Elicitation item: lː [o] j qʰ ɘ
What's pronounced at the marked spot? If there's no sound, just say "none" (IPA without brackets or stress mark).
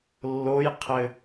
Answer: o